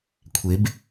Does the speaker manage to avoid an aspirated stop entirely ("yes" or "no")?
no